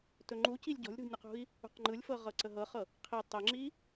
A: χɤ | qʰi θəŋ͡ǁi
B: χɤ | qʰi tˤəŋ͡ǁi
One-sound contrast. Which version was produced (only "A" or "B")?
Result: B